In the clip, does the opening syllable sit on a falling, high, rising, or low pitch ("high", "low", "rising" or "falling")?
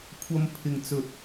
high